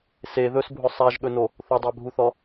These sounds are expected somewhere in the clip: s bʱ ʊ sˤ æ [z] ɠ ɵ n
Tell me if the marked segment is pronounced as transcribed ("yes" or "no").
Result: no